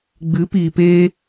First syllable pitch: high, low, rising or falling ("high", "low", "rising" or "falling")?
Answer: rising